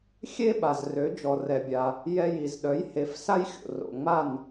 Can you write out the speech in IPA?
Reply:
xʲ e˥ ɓ a˩ z r ø˩˥ d͡ʒ ɔ˩ r ɛ˩ bʲ a˩ | j ɛ˧ j i˩ z ɗ œ˩˥ j h e˩˥ f s a˥ j xʲ o̰˩ r o̰˩ ŋ͡m a˥˩ n

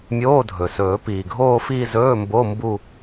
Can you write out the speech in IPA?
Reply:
mʲ oː˧˥˧ dʱ ɵ˩ s ɵː˨˩˦ p iː˩ ɡʱ oː˥˧ f iː˥˧ z ɵː˧˥˧ m b o˧˥˧ m b u˥˧

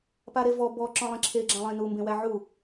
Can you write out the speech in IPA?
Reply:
p a ɾ e v ɔ b ɔ ǁ ɔ̃ lˠ ẽ ǁʰ e ɡ͡ǁ ã lˠ ẽ n u m b ẽ w æ ʕ u

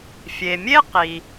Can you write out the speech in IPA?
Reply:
fʲ e˩ mʲ e˥ q i˩

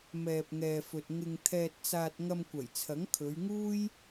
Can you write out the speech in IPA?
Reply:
m ɛː˨ p̚ ŋ ɛː˨ f ɵ˨ t̚ ŋ ɪ˧ ŋ t̪ʰ ɛː˧ t̚ t͡s aː˧ t̚ ŋ ɐ˧ m kʷ ɐ˨˩ j t͡sʰ ɐ˨˥ ŋ kʰ ɵ˨˧ ɥ ŋ uː˥ j

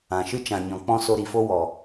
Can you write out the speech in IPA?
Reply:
ã˨ ʃ ɨ˦ t͡ʃ ã˨ ɲ ɔ̃˨ k͡p ɔ̃˦ s o˧ ɾ i˨ f o˦ w ɔ˨

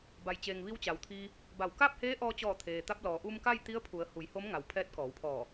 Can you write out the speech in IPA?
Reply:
b a˩ j t͡ɕ eː˩ ŋ ʋ i˧ w t͡ɕ a˩ w t̪ʰ iː˧ | b a˧˩ w k a˥˨ p̚ h eː˧˥ ʔ ɔː˧ t͡ɕ ɔː˧˩ t̪ʰ eː˩ t̪ a˧ p̚ l ɔː˩˧ ʔ u˧ m k a˥˨ j t̪ i˧˥ ə̯ pʰ u˩˧ ə̯ h u˩˧ j h o˧˥ m ŋ a˩ w pʰ ɛː˧ t̚ k ɔː˩˧ w pʰ ɔː˧˩

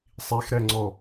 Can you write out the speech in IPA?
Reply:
sˤ i x ɾ ɛ ŋ͡ǀ ɔ

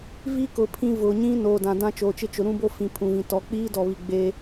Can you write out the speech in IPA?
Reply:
v i˦ k ʊ˨ pʰ ĩ˨ v ʊ˨ ɲ ĩ˦ n oː˨ d ã˨ d ã˦ t͡ʃ oː˨ t͡ʃ ɪ˦ t͡ʃ ʊ˨ ɾ ũ˦ b o˦ f ĩ˨ pʰ ũ˨ v ĩ˨ t ɔ˨˦ k͡p iː˦ d ɔ˨ β i˨ ɡ͡b e˦

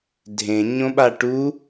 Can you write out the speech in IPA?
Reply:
dʱ ẽ ɲ õ ɓ a ʈ u

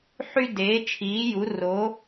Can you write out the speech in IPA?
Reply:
ħ y˧ d eː˩˧ t͡ʃʰ iː˩˧ j u˩˧ r o˩˧

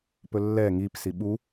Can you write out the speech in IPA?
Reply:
p ɵ lː ɛ ŋ i p s i ɓ u

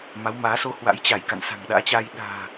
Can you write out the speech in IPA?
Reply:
m a˨˦ w m aː˨˦ s o˧ h w a̰˧˥ j t͡ɕ a˧˩ j k a̰˧˨ n s a̤˨˩ ŋ ɗ a̰ː˧˥ t͡ɕ a˧ j ɗ a̤ː˨˩

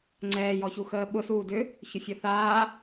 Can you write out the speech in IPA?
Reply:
ŋ͡ǀ ɛː j ɔ ç u x əː ɓ ʊ s uː d ʏ | ç ʊ fʲ ɔ θ aː

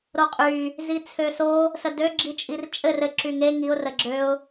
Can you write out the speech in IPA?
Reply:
ɾ o qʼ y | z i t͡sʰ ø s o | s ə d ø ɡ͡ǁ i t͡ʃʼ i r t͡ʃʼ ɘ r ɘ ǁ y ŋ e ŋ i ʊ̯ r ə ɡ͡ǁ ø ʊ̯

